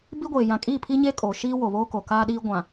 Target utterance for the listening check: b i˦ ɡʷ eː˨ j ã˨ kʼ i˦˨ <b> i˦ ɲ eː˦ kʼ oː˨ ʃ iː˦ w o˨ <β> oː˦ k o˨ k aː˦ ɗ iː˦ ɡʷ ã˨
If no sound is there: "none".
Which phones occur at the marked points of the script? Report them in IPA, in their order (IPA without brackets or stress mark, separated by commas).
pʰ, β